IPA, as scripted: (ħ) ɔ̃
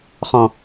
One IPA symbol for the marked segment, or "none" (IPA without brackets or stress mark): χ